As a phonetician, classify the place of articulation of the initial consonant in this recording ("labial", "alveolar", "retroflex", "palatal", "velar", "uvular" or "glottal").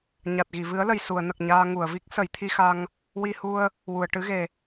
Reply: palatal